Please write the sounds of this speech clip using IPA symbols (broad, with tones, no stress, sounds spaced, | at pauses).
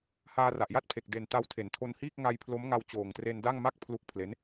h aː˧ r a˨˩ ʔ j a˥˩ t̚ pʰ e˨˩ k̚ d e˨˩ n t a˧ w tʰ e˩˦ n tʰ o˧ n h iː˥˩ k̚ ŋ a˧ j pʰ l o˦˥ m ŋ a˧ w t͡ɕ oː˨˩ ŋ t r e˧ n d a˥˩ ŋ m a˥˩ k̚ pʰ l u˦˥ k̚ pʰ l e˦˥ n